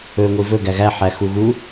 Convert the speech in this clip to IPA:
ɵŋʷi vɵ ɡæɣæ ħæxuɣu

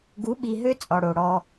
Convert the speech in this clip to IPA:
ɡu˨˦ɓi˨ɦø˦ t͡sʼɔ˨ɽo˨ɽɔ˦

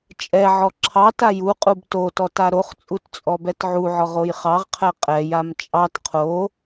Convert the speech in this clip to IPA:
t͡ʃʼɛʕɔ ǁʰɑ tajuqʼub totɔ taɾoχt͡sʼut t͡sʼɔbɛtʕuʕɔʁ ojχɑʁqʰɛ qʼɛjam t͡ʃʼɑt qʰo

